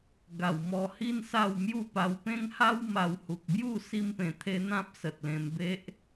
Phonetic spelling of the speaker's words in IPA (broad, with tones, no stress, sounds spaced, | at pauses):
ɡ a˨˩ w m ɔ˧ h i˦ n s a˥˧ w m j u˥˧ p a˧ w p ẽ˦ ŋ h a˦ w m a˧ w h u˨ k̚ b j u˥˧ s i˦ m p ẽ˧ t̪ʰ e˦ n̪ ã˦ p̚ s ə˨ t̚ l ẽ˧ m b e˦ ʔ